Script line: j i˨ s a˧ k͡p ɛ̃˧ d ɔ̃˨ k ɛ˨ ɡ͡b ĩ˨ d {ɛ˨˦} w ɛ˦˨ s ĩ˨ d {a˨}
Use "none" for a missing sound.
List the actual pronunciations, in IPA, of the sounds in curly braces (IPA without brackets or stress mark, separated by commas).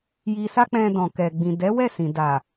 ɛ˨˦, a˨